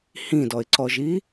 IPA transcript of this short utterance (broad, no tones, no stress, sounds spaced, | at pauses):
h ĩ d ɔ ɪ̯ ǀ ɔ ʒ i